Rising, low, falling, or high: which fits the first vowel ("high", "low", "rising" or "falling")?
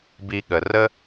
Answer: low